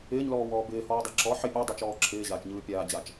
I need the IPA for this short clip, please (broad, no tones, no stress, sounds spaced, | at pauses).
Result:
ɪː ɲ l ɔː w ɔː b ɪː h ɔː dˤ a ǁ ɔ ħ ɪ pʲ a dˤ ɪː t͡ʃ ɔː ǁʰ ɪː ʑ aː t͡ʃ ɲ ɯː pʲ aː d͡ʑ a t͡ʃ